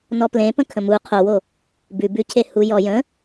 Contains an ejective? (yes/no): no